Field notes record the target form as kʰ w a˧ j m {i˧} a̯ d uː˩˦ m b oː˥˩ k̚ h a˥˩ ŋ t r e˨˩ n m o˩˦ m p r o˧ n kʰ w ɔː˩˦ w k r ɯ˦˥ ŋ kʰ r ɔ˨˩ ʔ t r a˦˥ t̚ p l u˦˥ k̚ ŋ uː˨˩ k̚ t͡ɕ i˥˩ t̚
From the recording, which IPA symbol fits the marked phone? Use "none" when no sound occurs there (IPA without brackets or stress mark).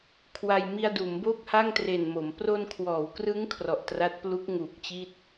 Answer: i˧